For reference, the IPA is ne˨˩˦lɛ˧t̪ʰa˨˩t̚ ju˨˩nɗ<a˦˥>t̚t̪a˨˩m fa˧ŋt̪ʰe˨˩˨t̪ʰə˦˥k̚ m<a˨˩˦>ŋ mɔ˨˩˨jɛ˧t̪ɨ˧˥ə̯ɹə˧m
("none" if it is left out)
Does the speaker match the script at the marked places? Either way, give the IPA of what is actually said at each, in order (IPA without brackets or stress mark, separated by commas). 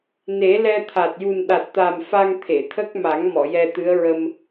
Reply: a˨˩, a˨˩˦